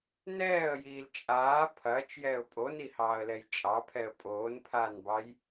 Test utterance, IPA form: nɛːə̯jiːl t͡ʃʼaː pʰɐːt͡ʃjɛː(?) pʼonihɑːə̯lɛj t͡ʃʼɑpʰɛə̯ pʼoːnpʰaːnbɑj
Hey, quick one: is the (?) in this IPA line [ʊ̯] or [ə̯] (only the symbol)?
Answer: ʊ̯